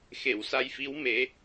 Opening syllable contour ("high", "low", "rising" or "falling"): low